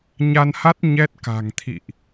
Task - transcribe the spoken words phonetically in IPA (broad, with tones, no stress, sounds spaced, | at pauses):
ɲ a˧ n h a˦˥ t̚ ɲ ɛ˦˥ t̚ k a̤˨˩ ŋ t̪ʰ ḭ˧˨ ʔ